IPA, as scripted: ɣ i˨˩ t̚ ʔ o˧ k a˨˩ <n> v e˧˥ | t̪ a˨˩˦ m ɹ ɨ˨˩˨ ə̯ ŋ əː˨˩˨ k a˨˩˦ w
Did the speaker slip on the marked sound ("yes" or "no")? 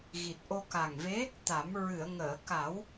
yes